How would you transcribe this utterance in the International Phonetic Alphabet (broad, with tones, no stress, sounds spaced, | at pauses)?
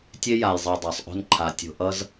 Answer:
tʲ e˦ j a˨ j zˤ i˨ dˤ a˨ sˤ ʔ o̤˦ n ǃʰ a˧ tʲ o̤˧ ʔ ʌ˦ z